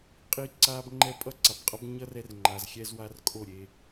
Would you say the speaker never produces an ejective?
no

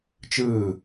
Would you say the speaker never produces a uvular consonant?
yes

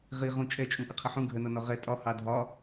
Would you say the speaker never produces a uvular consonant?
no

